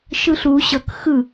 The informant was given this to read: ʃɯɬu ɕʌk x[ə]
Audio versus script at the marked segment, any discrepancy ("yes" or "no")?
yes